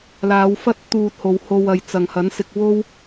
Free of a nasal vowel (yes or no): yes